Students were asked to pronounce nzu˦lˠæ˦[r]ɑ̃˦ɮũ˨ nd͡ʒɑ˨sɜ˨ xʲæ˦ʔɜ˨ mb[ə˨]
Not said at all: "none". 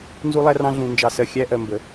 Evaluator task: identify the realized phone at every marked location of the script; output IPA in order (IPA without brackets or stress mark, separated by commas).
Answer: r, ə˨